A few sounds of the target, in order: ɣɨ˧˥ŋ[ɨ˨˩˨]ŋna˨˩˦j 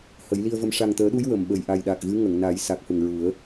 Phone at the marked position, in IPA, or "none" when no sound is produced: ə˨˩˨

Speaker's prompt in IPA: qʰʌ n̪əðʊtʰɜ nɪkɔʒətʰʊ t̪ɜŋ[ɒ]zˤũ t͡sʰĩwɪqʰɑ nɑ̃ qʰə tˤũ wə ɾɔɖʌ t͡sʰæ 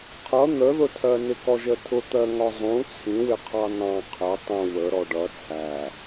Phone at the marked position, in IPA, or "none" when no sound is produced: ɒ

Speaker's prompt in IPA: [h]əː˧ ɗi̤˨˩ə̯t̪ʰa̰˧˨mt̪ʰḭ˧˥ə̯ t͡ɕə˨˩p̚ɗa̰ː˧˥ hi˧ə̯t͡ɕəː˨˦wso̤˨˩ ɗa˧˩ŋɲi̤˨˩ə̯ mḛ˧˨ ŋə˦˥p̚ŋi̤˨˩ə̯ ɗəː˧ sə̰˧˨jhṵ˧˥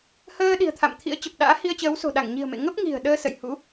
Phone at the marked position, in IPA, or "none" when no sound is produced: h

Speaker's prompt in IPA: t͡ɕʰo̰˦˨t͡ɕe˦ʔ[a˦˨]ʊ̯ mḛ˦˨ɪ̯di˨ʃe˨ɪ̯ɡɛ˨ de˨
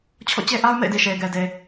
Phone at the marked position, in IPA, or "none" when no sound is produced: a˦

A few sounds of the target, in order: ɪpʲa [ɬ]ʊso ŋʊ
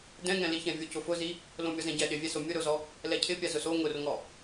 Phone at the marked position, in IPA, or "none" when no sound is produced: z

